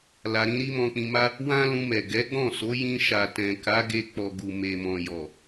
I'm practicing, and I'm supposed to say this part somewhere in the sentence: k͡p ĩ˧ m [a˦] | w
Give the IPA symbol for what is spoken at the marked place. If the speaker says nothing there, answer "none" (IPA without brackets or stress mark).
a˦